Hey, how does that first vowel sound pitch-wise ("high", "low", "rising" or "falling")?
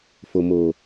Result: low